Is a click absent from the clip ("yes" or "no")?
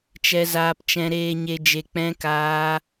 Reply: yes